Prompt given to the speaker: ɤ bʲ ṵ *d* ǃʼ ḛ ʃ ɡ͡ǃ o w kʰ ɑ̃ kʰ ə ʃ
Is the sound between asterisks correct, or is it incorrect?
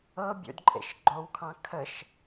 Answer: correct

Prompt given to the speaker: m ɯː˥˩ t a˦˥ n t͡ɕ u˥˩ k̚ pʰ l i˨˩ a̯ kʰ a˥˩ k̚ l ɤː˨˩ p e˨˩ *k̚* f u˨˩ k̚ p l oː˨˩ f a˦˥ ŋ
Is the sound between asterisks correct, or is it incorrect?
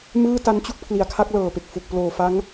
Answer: correct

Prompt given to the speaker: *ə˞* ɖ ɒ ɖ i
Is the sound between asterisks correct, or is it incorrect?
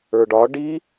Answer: correct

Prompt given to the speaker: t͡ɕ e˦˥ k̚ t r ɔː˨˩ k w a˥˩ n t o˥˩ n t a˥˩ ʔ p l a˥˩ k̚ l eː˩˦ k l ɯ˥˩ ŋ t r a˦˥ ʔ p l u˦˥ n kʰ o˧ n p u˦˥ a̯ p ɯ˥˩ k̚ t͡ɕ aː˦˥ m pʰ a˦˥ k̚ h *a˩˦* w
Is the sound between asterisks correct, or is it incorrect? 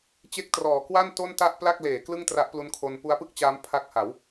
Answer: correct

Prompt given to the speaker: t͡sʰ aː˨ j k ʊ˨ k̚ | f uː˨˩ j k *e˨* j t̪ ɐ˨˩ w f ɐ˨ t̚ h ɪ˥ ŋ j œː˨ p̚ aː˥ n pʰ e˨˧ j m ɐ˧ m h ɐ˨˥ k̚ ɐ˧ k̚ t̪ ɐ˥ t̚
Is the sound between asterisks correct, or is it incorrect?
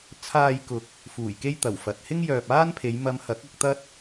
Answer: incorrect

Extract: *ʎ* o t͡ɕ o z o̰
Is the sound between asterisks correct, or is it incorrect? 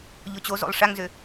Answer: correct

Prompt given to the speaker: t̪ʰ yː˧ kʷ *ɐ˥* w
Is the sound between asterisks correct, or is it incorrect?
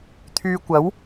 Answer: incorrect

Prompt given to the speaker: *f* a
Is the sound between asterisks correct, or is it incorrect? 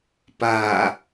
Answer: incorrect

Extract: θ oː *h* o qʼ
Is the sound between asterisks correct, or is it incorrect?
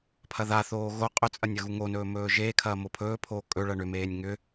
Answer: incorrect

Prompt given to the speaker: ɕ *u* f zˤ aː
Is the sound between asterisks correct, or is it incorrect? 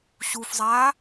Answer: correct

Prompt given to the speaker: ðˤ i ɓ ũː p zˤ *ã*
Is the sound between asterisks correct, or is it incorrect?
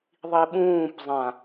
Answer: correct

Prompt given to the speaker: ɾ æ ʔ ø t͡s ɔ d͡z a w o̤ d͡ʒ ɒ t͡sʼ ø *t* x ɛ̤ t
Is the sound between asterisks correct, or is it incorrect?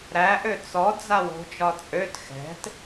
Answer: correct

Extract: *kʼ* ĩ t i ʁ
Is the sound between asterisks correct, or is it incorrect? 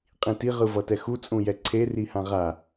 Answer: incorrect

